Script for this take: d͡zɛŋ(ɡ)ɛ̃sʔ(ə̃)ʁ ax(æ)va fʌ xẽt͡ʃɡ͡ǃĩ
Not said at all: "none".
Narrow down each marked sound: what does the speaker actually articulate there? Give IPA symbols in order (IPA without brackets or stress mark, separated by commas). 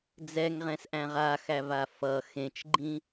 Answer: ʁ, æ̃, æ